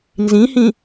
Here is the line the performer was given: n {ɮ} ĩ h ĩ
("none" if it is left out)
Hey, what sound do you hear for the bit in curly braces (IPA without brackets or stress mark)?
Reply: z